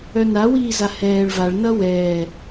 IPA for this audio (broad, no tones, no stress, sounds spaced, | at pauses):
œ n a w iː z a h ɛː ɭ v a ɭ n ʌ w ɛː